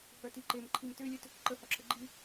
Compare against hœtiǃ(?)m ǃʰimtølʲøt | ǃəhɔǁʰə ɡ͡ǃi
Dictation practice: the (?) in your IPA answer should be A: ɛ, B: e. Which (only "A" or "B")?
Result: B